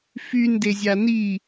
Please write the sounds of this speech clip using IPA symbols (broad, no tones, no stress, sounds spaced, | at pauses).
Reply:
f y n d e zʲ a n i